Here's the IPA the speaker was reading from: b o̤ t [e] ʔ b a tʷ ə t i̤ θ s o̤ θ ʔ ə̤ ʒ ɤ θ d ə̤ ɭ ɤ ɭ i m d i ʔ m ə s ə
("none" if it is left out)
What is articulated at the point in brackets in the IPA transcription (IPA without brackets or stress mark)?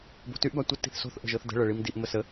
y